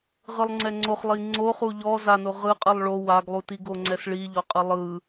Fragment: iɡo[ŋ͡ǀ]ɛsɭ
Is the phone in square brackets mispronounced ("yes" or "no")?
no